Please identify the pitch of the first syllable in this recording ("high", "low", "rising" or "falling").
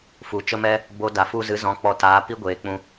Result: low